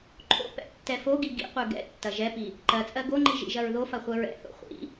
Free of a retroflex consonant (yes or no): yes